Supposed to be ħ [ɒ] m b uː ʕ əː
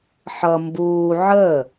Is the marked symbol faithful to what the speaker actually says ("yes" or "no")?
no